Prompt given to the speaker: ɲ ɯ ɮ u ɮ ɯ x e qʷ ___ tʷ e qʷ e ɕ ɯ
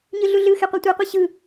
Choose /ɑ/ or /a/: a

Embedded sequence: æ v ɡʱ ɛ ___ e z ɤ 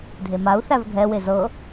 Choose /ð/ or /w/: w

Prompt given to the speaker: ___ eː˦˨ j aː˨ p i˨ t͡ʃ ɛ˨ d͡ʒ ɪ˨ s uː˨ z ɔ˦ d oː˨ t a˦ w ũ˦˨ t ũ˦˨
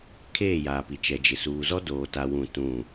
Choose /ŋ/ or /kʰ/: kʰ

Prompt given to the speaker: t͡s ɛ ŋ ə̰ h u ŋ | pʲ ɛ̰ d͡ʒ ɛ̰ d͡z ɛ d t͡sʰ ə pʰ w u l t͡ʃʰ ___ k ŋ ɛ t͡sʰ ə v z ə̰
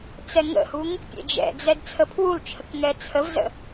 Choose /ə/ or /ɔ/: ə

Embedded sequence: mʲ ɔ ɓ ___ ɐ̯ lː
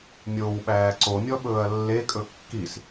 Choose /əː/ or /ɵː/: ɵː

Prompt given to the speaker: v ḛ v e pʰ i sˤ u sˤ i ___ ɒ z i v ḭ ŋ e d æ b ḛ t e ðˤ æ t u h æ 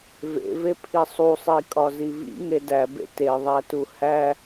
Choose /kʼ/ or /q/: kʼ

